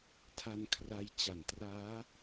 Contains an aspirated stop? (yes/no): yes